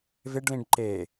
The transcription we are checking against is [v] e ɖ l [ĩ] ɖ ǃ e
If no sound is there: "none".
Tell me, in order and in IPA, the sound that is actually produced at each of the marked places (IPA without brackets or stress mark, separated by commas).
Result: v, ĩ